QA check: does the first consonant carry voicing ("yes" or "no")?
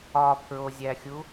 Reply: no